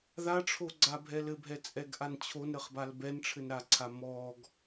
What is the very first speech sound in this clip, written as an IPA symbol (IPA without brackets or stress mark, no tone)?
ð